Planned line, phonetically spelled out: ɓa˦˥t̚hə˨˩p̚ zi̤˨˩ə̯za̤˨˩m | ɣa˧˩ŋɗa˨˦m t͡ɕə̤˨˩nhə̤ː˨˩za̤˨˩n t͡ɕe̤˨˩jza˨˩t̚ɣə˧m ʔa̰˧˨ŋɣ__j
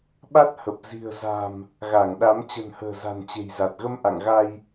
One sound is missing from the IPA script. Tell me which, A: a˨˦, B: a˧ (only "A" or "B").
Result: B